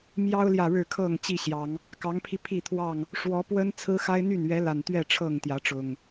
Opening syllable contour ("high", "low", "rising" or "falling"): high